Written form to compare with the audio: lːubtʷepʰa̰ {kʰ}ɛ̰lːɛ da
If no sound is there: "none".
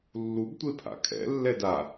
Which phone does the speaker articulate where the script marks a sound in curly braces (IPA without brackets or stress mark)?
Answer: kʰ